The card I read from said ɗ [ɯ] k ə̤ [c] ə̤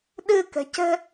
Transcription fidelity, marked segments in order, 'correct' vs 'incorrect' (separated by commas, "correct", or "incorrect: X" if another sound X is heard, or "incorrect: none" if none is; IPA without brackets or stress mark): correct, correct